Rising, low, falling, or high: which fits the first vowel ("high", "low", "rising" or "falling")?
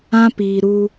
high